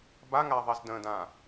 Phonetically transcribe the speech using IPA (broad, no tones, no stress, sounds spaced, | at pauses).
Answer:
b a ŋ a ðˤ i z d ə̃ d ã